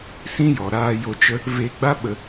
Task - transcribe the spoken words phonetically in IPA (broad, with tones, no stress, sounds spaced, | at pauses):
s ĩ˦ j ɔ˨ ɾ aː˧ j o˧ t͡ʃ ə˦ | v e˧ ɡ͡b a˦ ɓ ə˧